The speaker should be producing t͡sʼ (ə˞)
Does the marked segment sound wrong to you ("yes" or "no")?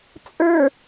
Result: no